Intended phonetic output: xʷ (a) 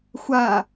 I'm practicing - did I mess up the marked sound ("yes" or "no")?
no